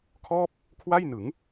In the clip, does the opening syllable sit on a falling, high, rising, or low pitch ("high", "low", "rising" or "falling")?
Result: falling